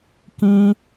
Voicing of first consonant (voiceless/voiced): voiceless